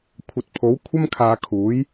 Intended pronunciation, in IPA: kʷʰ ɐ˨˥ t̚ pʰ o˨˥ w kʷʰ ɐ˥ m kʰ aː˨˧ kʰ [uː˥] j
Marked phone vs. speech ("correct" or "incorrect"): incorrect